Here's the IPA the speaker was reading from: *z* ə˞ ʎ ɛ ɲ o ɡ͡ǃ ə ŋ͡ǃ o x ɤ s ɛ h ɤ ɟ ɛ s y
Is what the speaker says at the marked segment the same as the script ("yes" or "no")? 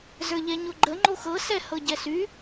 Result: yes